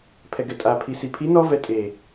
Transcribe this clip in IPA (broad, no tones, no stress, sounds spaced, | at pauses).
pʰ ɛ ɡ ɛ tʼ a pʰ i s i pʰ i n ɔ v ɛ tʼ e